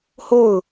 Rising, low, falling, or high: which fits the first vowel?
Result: falling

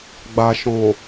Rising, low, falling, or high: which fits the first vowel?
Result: low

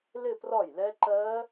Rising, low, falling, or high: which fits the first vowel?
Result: falling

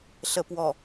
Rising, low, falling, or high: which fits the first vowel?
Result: low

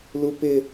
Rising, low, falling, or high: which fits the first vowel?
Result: high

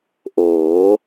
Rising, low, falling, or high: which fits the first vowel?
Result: rising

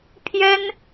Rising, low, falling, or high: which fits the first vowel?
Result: high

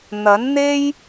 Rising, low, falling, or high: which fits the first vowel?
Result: rising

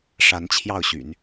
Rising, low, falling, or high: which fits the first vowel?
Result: rising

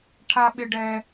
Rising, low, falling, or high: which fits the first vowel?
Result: high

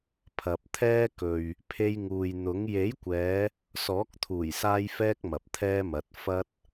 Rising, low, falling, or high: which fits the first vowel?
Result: low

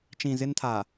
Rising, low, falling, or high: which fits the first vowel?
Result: low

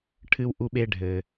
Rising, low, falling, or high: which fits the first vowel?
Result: high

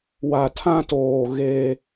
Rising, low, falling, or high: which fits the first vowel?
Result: low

